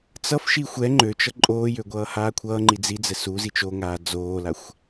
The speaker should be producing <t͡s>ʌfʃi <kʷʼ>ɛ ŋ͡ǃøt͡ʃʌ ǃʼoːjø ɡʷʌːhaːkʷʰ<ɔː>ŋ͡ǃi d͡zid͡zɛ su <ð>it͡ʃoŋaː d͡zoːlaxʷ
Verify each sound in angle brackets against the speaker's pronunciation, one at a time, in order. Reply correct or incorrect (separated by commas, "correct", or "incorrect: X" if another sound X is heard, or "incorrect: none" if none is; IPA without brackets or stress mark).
correct, incorrect: xʷ, incorrect: ʌː, incorrect: z